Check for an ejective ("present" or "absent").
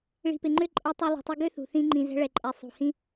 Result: present